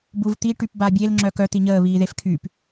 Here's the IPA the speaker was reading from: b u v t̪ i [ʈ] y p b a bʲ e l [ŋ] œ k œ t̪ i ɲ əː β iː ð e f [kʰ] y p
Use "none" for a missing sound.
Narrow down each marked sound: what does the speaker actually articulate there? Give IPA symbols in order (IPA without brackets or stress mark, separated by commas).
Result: ʈ, ŋ͡ǁ, kʰ